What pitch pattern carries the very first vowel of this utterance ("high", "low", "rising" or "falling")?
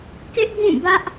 high